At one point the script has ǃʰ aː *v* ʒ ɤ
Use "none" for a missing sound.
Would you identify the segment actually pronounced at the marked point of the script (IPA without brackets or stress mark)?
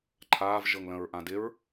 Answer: v